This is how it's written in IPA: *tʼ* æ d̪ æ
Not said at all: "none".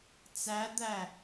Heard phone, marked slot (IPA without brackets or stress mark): t͡s